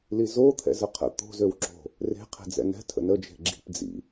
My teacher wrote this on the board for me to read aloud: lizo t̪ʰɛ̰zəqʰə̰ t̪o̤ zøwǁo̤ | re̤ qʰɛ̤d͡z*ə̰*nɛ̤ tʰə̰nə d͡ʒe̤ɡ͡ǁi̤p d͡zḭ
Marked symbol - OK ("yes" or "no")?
no